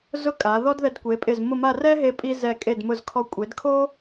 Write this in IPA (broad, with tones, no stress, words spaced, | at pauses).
zʊ˥˧kʼa˩˧ ðɔ˥dðɛ˧dkʷe˩˧pʼɪ˧˩z mʊ˥˧ma˥˧ rɛ˥ɦe˧pʼi˧ zɛ˧˩kʼe˧˩dmʊ˧˩zkʰɔ˧ kʷʼe˩˧dkʰo˥